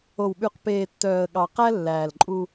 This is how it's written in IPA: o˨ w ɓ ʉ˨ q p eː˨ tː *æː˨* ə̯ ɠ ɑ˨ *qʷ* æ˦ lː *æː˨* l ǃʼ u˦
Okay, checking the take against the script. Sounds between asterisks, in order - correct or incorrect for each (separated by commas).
incorrect, incorrect, correct